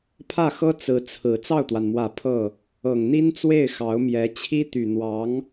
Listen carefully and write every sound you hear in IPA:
pʰ ä˥˩ x ɤ˥ t͡s ɹ̩˧˥ t͡sʰ ɹ̩˨˩ t͡s ɑ˥˩ ʊ̯ t̪ w a˩ n m w ä˨˩ pʰ ɤ˥˩ | ɤ˨˩ ŋ n̪ i˥ n t͡s w e˥˩ ɪ̯ x ɑ˧˥ ʊ̯ m j ɛ˧˥ t͡ɕʰ i˥ t̪ y˨˩ n̪ w ɑ˧˥ ŋ

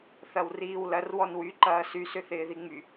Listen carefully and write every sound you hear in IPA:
θ ɐ w r iː w l ɐ r w ɔ n w y ǃ ɐː s y s ʏ θ ɪː ð i ŋ͡m y

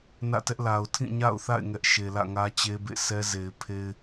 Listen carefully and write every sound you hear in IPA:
n ä̰˦˨ t ɛ˦ ʔ l a˨ ʊ̯ tʰ ĩ˦˨ ɲ a̰˦˨ ʊ̯ θ a̰˦˨ ɪ̯ ŋ ɛ˦ ʔ ʃ e˨ l ä̰˦˨ ŋ ä˦ t͡ɕ e˦ b ḛ˦˨ sʰ ɛ˦ z e˨ ɪ̯ pʰ e˦ ɪ̯

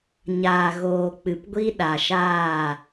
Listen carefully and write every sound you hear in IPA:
ɲ aː˨ ɣ oː˨ k͡p ɨ˨ p ɡʷ i˦ ɗ a˨ ʃ aː˦˨

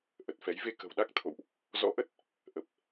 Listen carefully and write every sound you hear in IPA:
ʔ ə˨˩ t̚ f ɛ˨˦ j v e˧ k ə̤˨˩ w ɗ a˦˥ k̚ t̪ʰ o̰˧˨ w ʔ | z ɔ̰˧˥ ʔ ə˦˥ t̚ | ʔ ə˨˩ p̚

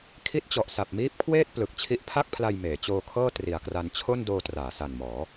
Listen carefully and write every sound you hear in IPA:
kʰ i˦˥ t̚ t͡ɕ ɔ˨˩ ʔ s a˨˩ p̚ m iː˦˥ p̚ kʰ w eː˥˩ t̚ p l ɯ˨˩ k̚ t͡ɕʰ i˦˥ ʔ pʰ a˥˩ k̚ pʰ l a˧ j m eː˩˦ t͡ɕ oː˧ kʰ ɤː˥˩ t r i˨˩ a̯ k r a˧ n t͡ɕʰ o˥˩ n d oː˧ t r aː˩˦ s a˨˩ n m ɔː˩˦

